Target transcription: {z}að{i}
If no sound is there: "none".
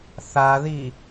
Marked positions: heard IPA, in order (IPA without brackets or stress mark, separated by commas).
θ, i